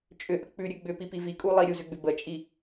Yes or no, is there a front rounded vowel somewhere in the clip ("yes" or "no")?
yes